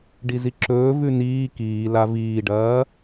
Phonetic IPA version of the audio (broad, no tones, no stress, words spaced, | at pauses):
ɖiziǁɵː vʉniː kiː laviːɖɐː